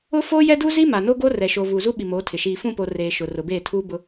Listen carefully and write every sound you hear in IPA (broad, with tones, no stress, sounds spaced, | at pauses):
ʊ˦ f oː˦ j ɛ˦ d u˦ z i˦ m a˨ n o˦ ɡ o˦ r ɛ˨ ʃ o˨ v uː˨ z u˦ ɓ i˨ m oː˨˦ tʰ ɪ˨ ʃ iː˨ f ũ˦˨ p o˨ r eː˨ ʃ ʊ˨ r ʊ˨ b eː˦˨ tʰ uː˦ b ʊ˦